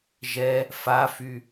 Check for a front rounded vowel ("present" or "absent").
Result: present